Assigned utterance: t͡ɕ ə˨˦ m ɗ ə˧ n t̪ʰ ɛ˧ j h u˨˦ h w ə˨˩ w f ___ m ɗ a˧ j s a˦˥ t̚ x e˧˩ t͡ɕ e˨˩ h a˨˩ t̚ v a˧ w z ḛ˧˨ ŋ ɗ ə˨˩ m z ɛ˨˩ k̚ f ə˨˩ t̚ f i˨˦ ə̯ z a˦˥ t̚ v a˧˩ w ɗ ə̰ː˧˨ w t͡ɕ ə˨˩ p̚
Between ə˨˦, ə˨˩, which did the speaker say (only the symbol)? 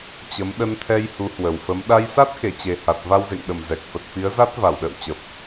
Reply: ə˨˦